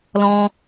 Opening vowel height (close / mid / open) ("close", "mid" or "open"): mid